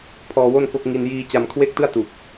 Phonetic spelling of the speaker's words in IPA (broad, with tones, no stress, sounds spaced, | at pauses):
pʰ ɔː˧ w o˥˩ n k o˦˥ k̚ ŋ i˧ n j iː˧ t͡ɕ a˧ m kʰ w e˥˩ k̚ t ɯ˥˩ a̯ t u˨˩ k̚